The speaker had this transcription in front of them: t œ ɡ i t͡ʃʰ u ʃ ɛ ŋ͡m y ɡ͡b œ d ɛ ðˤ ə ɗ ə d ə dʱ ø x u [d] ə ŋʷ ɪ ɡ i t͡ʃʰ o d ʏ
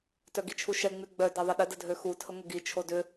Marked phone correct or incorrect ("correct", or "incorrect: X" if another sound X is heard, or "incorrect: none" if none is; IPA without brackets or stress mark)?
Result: incorrect: tʰ